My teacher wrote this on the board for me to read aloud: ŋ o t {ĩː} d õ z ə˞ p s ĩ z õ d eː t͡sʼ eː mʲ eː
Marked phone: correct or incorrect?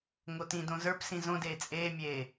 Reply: incorrect: ĩ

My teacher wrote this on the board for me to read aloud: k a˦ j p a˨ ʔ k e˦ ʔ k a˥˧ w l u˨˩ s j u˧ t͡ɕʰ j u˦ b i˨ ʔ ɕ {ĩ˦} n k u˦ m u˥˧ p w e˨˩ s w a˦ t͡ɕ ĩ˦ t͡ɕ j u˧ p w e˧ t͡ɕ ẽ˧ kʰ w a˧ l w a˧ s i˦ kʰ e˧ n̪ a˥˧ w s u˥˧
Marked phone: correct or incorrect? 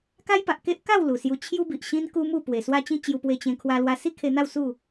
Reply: correct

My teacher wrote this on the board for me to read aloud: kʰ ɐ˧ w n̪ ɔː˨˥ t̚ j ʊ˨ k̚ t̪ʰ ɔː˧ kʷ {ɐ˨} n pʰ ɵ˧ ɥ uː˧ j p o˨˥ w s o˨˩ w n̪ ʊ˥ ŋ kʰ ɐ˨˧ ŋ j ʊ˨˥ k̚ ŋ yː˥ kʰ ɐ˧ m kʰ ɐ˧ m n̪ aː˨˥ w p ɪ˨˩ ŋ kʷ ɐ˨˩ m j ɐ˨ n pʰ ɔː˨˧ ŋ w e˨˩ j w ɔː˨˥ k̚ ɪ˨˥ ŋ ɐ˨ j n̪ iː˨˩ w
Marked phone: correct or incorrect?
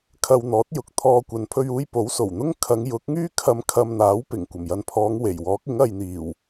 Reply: correct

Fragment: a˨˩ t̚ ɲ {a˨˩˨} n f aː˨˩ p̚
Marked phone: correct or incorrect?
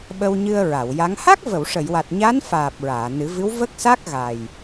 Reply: incorrect: a˧˥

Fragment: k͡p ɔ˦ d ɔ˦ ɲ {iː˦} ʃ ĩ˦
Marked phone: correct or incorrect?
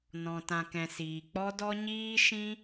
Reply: correct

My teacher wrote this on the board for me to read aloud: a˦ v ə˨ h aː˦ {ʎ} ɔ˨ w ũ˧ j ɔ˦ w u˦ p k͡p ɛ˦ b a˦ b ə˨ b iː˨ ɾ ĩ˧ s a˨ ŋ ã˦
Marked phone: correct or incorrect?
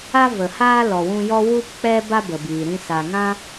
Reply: incorrect: l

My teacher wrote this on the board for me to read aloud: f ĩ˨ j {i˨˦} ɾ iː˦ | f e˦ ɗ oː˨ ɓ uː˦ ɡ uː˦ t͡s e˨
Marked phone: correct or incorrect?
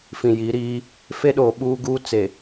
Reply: correct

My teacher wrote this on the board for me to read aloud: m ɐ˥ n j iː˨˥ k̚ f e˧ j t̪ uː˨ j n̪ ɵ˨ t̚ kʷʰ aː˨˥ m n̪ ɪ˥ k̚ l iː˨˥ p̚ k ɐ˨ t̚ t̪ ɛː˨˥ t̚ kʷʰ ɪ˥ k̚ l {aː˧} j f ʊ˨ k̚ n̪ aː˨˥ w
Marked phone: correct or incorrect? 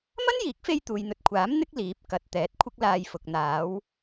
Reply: correct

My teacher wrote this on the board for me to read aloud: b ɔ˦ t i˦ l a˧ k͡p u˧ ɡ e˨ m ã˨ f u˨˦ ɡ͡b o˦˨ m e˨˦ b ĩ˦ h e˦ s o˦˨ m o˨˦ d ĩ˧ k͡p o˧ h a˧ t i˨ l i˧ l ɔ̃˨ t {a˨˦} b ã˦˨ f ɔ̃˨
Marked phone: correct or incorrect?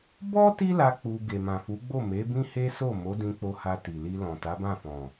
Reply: correct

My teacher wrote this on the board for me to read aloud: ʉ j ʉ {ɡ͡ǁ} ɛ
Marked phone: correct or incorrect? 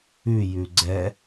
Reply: incorrect: ɡ͡ǀ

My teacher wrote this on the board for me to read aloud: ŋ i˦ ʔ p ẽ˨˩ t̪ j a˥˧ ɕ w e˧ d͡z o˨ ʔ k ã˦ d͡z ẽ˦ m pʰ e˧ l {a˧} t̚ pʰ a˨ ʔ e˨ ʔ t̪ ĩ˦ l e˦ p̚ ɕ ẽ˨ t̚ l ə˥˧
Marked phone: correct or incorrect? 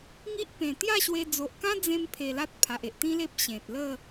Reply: incorrect: a˦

